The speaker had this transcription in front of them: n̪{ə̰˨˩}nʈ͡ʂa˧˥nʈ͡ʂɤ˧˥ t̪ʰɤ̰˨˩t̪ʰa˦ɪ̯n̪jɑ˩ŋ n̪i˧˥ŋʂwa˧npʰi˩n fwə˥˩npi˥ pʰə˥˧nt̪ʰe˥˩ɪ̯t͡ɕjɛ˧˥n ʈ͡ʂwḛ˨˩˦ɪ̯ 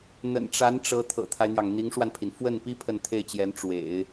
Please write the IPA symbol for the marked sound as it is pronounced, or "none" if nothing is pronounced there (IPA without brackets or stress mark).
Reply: ə̰˨˩